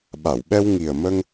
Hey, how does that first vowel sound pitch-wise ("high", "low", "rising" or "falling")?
low